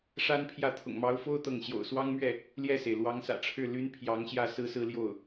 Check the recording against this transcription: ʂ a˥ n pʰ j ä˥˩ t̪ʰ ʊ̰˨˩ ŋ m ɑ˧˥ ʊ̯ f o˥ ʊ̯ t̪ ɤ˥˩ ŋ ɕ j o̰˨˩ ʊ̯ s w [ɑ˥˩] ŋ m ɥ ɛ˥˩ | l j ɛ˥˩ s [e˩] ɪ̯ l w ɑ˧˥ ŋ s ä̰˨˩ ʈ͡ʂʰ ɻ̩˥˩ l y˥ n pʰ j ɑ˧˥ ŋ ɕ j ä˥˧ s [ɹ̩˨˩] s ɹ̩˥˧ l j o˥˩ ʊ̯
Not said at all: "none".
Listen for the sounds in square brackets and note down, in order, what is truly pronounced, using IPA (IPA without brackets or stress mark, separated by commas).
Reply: ɑ˥, e˩, ɹ̩˥˧